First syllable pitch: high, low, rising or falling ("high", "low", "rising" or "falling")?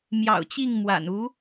low